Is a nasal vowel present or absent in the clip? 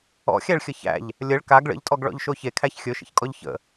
absent